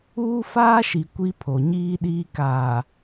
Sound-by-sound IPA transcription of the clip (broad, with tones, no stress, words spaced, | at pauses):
uː˦faː˦ʃi˨ kʷi˦pʰo˨ɲiː˦ɗiː˦ kaː˨